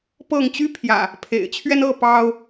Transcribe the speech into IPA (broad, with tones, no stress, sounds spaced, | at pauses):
p ɤ˥˨ ŋ t͡ɕ y˦ pʰ j ä̰˨˩ | pʰ ḛ˨˩ ɪ̯ t͡ɕʰ ɥ ɛ˦ n ɤ˥˨ p ɑ˦ ʊ̯